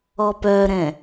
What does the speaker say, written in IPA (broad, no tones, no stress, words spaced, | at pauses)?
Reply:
ɔpœɾɛ̃